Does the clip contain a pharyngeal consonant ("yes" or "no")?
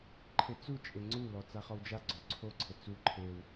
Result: no